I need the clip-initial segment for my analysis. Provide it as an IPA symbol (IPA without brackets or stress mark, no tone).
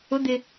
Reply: ʊ